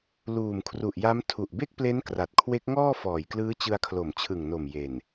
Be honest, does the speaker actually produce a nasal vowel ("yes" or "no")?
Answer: no